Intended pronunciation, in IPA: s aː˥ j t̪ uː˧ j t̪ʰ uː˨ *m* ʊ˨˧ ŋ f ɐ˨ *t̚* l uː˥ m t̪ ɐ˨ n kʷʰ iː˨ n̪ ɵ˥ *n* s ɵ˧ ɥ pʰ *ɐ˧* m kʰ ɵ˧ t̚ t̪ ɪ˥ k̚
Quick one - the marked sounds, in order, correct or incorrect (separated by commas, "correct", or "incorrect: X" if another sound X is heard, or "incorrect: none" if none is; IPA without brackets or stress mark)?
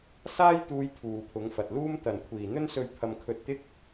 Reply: incorrect: pʰ, correct, correct, correct